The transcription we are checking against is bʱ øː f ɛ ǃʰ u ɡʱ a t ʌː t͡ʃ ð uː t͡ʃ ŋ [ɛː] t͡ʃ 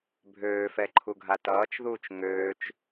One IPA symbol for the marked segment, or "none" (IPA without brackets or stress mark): øː